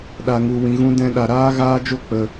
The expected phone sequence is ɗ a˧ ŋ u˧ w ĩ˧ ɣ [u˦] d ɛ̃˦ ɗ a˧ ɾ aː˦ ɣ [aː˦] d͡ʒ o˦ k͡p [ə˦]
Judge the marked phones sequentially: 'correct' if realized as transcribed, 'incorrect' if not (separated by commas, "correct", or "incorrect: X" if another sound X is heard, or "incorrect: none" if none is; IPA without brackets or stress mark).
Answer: incorrect: ũ˦, correct, incorrect: ə˧